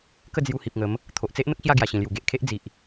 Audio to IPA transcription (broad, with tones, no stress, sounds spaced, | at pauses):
k ə˥˧ d͡z j u˧ h i˨ p̚ ŋ ə˨˦ m | t̪ʰ o˨ ʔ t͡s e˦ ʔ n̪ ə˦ k̚ ɕ j a˥˧ ɡ j a˨˩ ɕ ĩ˨˩ l j u˨˩ ɡ e˨ ʔ kʰ e˦ ʔ d͡z i˨ ʔ